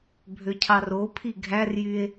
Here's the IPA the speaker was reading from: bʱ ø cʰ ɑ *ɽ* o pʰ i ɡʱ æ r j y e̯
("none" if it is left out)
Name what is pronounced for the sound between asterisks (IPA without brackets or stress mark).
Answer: r